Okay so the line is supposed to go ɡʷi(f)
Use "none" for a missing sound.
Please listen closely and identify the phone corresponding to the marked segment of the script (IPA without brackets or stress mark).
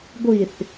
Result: θ